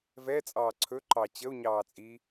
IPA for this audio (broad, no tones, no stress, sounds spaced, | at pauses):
v ɛ t͡sʼ ɑː ǀʰ ɵ ǃ ɑ t͡ɕ ə u̯ ɲ ɑː t͡sʼ i